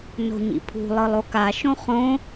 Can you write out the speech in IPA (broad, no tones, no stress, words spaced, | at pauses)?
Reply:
no̤ɲḭpʰṳ lˠɯlˠoka ʃõχõ